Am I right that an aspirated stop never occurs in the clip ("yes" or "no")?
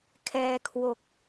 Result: no